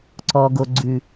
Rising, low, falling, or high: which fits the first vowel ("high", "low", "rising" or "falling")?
low